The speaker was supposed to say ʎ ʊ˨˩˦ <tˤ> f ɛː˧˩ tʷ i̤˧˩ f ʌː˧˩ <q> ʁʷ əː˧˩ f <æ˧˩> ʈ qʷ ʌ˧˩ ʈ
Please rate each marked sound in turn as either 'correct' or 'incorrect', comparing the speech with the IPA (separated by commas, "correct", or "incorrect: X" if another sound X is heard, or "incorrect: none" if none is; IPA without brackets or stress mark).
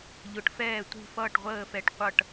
incorrect: ʈ, incorrect: ʈ, incorrect: ɛ˧˩